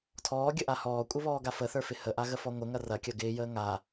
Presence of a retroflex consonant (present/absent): absent